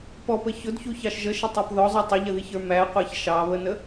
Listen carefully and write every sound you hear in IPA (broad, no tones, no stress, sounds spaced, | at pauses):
p ɔ p ə ç ʊ d ç u ç ɑ ʃ ʒ ə ʃ ə tˤ æ p ð ɔ zˤ u tˤ ə ʎ ə ð i ç ə˞ m æ qʷ ɑ ç ʃ ɑ β ə n ə